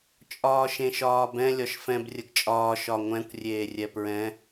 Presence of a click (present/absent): absent